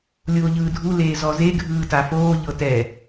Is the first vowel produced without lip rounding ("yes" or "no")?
no